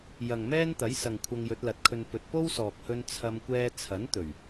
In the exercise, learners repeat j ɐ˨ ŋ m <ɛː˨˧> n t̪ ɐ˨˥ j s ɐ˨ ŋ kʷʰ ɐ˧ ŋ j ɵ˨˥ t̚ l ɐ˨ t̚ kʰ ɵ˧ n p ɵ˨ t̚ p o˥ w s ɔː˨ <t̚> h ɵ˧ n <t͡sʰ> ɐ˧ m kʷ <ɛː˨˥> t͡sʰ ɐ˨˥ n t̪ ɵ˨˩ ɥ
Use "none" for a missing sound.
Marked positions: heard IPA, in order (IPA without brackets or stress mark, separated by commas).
ɛː˥, k̚, t͡sʰ, ɛː˧